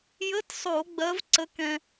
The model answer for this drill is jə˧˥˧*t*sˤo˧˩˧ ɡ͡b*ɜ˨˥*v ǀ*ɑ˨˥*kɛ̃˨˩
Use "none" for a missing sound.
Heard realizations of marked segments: t, ɜ˨˥, ə˨˥

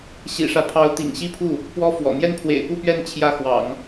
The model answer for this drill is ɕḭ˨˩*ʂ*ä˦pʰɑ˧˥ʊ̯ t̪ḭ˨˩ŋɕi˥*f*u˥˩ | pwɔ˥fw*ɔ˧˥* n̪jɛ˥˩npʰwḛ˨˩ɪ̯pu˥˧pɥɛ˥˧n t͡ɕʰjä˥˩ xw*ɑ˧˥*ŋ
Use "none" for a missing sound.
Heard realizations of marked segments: ʂ, pʰ, ɔ̰˨˩, ɑ̰˨˩˦

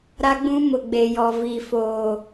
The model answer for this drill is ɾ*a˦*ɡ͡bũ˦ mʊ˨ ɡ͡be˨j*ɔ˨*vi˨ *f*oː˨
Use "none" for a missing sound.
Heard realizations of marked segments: a˦, ɔ˨, f

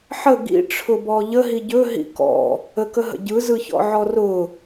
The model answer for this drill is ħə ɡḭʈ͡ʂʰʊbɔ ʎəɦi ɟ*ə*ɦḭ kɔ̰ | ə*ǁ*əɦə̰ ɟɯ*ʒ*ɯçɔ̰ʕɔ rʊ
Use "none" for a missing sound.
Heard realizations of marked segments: ɵ, k, z

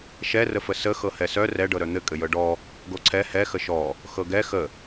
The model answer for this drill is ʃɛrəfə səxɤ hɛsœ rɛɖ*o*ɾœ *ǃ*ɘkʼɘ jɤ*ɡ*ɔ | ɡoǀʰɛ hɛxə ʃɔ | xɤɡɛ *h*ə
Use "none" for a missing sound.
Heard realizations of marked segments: ɤ, n̪, ɖ, x

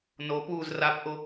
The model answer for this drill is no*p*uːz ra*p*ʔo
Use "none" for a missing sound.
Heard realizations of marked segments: p, p

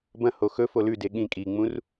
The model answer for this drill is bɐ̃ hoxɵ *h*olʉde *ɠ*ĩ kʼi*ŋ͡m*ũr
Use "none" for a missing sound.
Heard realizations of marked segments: f, ɠ, ŋ͡m

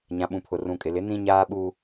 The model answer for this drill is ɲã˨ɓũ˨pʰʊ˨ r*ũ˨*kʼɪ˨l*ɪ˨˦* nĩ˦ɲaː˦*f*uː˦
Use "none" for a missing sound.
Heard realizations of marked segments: ũ˨, ɪ˨˦, ɓ

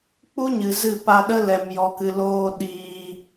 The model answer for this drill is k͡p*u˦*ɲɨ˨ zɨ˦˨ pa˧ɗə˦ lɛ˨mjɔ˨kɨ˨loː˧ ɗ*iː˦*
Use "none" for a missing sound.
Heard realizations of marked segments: u˦, iː˧

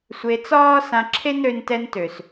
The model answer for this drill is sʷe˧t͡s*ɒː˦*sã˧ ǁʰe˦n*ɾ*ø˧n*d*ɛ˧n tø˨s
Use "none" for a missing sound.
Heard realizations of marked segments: ɒː˦, ɾ, t

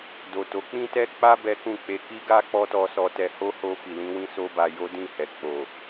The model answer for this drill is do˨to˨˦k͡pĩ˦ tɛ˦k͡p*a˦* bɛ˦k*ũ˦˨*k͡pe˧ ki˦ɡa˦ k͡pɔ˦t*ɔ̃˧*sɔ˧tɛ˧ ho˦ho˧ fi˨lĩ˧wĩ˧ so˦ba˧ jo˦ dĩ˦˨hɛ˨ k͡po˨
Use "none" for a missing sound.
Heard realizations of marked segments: a˦, ũ˦˨, ɔ˧

